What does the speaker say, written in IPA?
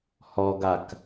h ɔ ɡ a k

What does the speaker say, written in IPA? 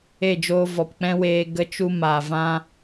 e˦˨ d͡ʒ oː˧ v ɔ˨ p k͡p ɛ̃˦ w eː˧ ɡ ə˧ t͡ʃ u˧ m aː˨ v ã˦

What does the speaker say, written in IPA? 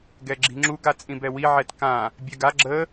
ɡ ɛ ɡ͡ǁ i̤ ŋ͡ǁ u ɡ a t͡sʼ ĩ b ɛ w i ʕ ɛ t k ã | bʲ ɛ ɡ a ɡ͡ǁ ə

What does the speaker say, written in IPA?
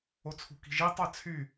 o t͡sʰ ṳ k i̤ ʒ i tˤ ɜ t͡sʰ y

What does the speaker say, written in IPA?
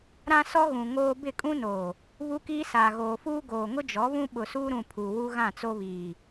ɾ ã˦ s ɔ˦ ɣ ũ˨ ŋ oː˦ b ɪ˦˨ kʼ ũ˦ n oː˨ | β u˦ k iː˦ s aː˨ ɣ oː˨ f uː˦ ɡ oː˨ ŋ ʊ˦ d͡ʒ ɔ˨˦ β ũ˦ ɓ ʊ˨ s uː˦ ɾ ũ˨ pʰ u˨ w u˦ ɣ ã˦˨ t͡s o˦ β iː˨

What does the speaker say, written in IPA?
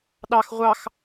ɗ ɑ x ʁʷ ɑ x

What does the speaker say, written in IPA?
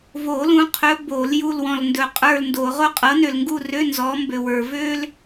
v o˨˩˦ l ũ˨˦ qʰ ɵ˨˦ b o˨˩˦ l j u˦˨ l w ɔ̃˨ l n d ɵ˨˦ qʼ ə˞˦˨ l n d o˨˩˦ ʁ o˥ qʼ ɤ˨˦ n ø˨ l ŋ ɡ u˦˨ r ø˧˥˧ n z ɔ˨˦ m b ø˨ w ə˞˨ v ø˥ l

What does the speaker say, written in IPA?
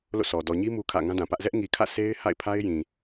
l o̰˦˨ s ɔ˨ d ɔ˨ ɲ i˦ m u˦ kʰ ä̰˦˨ ŋ ã˦ d ã˨ p ä˦ ʔ z ɛ˦ ʔ ŋ i˨ kʰ ä̰˦˨ s e˦ ɪ̯ h a̰˦˨ ɪ̯ pʰ a˦ ɪ̯ j ĩ˨

